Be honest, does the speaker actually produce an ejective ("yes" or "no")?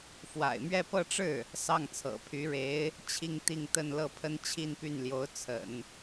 no